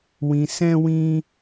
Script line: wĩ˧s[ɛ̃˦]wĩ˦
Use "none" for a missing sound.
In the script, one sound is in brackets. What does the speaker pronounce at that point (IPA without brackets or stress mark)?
ɛ̃˦